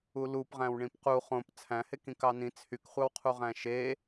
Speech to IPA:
u l u p ʁ æ̃ w ɳ ĩ p q u χ õ p t͡sʰ æ̃ h e k ĩ k ɑ n ĩ t͡sʰ y k χʷ ɑ w qʰ u ʁ æ̃ ʃ e

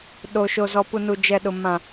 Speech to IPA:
ɗ o˨ ʃ o˨ z ɔ˨ p u˨ n u˨ d͡ʒ ɛ˨ ɗ ʊ˨ m ã˨

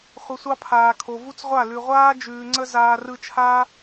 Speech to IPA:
χʷ ə˧ sʷ ɑ˦ pʰ aː˨ kʰ o˨ v u˦ t͡s ʁʷ a˦˨ l ʉ˨ ʁʷ aː˦ d͡ʒ ʉː˨ ŋ͡ǀ ə˧ z aː˧ r ɯ˧ t͡ʃʰ aː˦

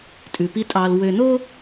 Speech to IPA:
tʼ ʉ˨ p i˦ tʼ ɑ˨ l w ø˨ n o˦

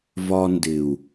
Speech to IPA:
v ɒ˧ n d ɪ˨ u̯

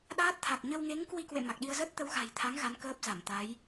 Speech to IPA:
ɗ aː˦˥ t̚ t̪ʰ a˨˩ k̚ ɲ ə˧ w ŋ e˨˦ ŋ k w i˧ k w ḛ˧˨ m a˨˩ k̚ ɗ i˧ ə̯ z ə˦˥ t̚ t̪ ə˨˦ w ɣ a̤˨˩ j t̪ʰ a˨˦ ŋ ɣ a˨˦ n k əː˦˥ p̚ z a˧˩ m t̪ a˨˦ j

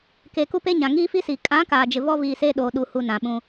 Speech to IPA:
k eː˨ k u˦ p e˦ ɲ ã˨ ŋ iː˦ f i˦ s iː˨ kʼ ã˨˦ k aː˨ d͡ʒ ɪ˨ v ɔ˦ v iː˨ s eː˦ ɗ oː˨ ɗ u˨ h u˨ n ã˨ ɓ ũ˦

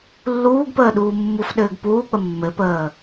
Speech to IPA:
lː uː ɡ p əː ɗ uː mː u f ɗ ɘː ɡ p uː k͡p ə mː ɘ p əː

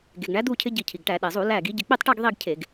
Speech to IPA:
ɡ e˩ ɡ ɳ æ˨˦ d̪ u˥˧ cʰ ɪ˦˥ ɟ i˧˩ cʰ i˩ ɡ ʈ æ˧˩˧ ɗ e˩ zˤ u˧˩˧ l æ˧˩ ɡ i˨˦ ɟ ɪ˧˩ k͡p i˥˧ tˤ ʈ æ˥˧ ɡ ðˤ i˥˧ ɡ cʰ e˧˩˧ ɡ

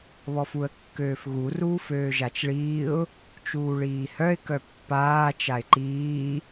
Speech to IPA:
β ɔ f u ə̯ kː øː f ɣ u r uː f øː ʒ a t͡ʃ ɭ iː ʊ̯ | t͡ʃ uː ɭ iː h œ ɪ̯ k œ pː aː t͡ʃ a ɪ̯ ǃ iː

